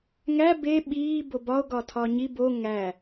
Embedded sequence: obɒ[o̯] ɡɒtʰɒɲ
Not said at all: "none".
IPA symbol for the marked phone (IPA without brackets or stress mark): o̯